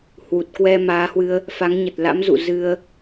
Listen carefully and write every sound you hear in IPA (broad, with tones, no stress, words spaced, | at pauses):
hwu˨˩t̚kwɛ˧ maː˨˦hwɨ˧ə̯ | fa˨˦ŋɲə˨˩t̚la̰˧˥mzṵ˧˨ zɨ˧ə̯